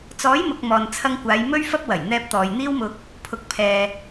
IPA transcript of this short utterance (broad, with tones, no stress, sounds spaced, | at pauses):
t͡s ɔː˨˥ j m ʊ˨ k̚ m ɔː˨ n t͡sʰ ɐ˧ ŋ kʷ aː˨˧ j m ɵ˥ ɥ f ɐ˥ p̚ w ɐ˨˩ j n̪ ɛː˧ p̚ t̪ ɔː˨ j n̪ iː˥ w m ʊ˧ k̚ | pʰ ʊ˨ k̚ pʰ ɛː˧